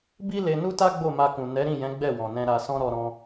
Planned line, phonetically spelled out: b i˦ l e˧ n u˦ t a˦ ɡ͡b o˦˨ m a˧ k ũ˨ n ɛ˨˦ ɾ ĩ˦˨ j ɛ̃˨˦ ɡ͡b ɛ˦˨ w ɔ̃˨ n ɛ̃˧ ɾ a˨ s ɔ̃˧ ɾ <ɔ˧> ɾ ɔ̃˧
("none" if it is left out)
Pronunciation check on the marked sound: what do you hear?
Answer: ɔ˧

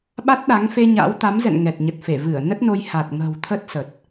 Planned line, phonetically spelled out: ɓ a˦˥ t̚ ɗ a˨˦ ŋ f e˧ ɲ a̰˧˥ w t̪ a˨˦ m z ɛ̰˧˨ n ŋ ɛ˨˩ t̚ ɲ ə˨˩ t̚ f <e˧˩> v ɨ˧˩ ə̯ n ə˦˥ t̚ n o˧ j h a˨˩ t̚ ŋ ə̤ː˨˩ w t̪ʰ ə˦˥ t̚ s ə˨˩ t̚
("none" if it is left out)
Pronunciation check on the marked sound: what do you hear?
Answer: e˧˩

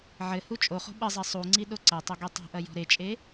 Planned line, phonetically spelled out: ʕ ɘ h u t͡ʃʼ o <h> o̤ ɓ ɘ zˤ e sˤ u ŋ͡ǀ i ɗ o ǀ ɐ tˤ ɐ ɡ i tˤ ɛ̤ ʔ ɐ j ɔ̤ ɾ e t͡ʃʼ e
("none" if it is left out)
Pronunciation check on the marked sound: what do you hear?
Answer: χ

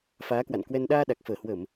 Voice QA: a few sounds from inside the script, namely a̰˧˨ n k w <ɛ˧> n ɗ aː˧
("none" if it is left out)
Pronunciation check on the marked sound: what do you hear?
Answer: ɛ˧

